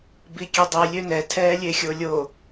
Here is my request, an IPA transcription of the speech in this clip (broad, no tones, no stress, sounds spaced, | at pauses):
b i kʲ e dˤ i lʲ ø n ɛ tʰ ɛː lʲ e xʲ o lʲ o